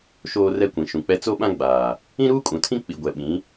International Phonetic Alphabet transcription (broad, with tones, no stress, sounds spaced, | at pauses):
ʃ oː˦ r ɛ˦ kʷ ĩ˨ ʃ ũ˨ k͡p ɛ˦ t͡s o˦ ɓ ã˦ ɡ͡b aː˨ | ĩ˦ ɾ uː˦ kʼ ũ˨ tʰ ĩ˦ k͡p i˨ ɡʷ ɛ˨ ɓ ĩ˨˦